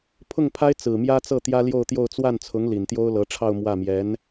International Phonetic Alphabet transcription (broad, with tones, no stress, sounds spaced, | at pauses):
pʰ ʊ˥˩ ŋ pʰ a˥ ɪ̯ t͡s ɹ̩˨˩ m j ä˥ t͡s ɤ˥˩ t̪ j ä˥ l j o˥˧ ʊ̯ t̪ j o˥˧ ʊ̯ t͡s w a˥˩ n t͡sʰ ʊ˧˥ ŋ l i˨˩ n t̪ j o˥ ʊ̯ l ɤ˧˥ ʈ͡ʂʰ ɑ˥˧ ʊ̯ m w ä˥˩ m j ɛ˧˥ n